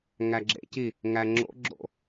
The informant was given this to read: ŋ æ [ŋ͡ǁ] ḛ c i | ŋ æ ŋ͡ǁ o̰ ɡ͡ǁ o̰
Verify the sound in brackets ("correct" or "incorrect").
incorrect